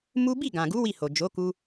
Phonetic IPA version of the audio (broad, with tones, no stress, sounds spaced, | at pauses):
m u˦ b i˦˨ ɡ ã˨ ɡ u˨˦ w i˦˨ h o˨ d͡ʒ o˨˦ k u˧